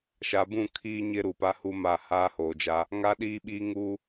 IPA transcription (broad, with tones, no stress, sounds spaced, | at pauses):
ʃ a˨ b ũ˦˨ kʰ iː˦ ɲ ɪ˦ ɾ u˨ p a˦ h u˦ m a˦˨ h aː˦ h oː˨ d͡ʒ a˦ | ŋ a˦ ɗ iː˦ ɓ iː˦ ŋ uː˦